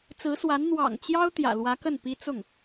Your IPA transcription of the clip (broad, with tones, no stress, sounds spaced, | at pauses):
t͡s ɹ̩˧˥ s w a˧˥ n n̪ w ɑ̰˨˩ ŋ t͡ɕ j ɑ˥ ʊ̯ t̪ j ä̰˨˩ l w ä˧˥ k ə˥˩ n p i˥ t͡s ʊ˥˩ ŋ